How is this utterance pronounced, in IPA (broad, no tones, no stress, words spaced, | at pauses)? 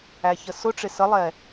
æçəsʊʈ͡ʂɪ səlˠɛ